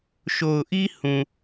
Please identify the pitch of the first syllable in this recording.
low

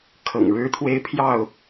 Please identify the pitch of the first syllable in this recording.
low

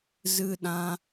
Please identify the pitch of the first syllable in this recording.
high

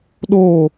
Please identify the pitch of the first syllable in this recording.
falling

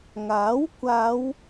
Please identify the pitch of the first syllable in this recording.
rising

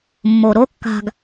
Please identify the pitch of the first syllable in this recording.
low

